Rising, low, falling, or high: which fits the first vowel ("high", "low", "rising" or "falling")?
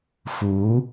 rising